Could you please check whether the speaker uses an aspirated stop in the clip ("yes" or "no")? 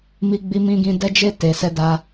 no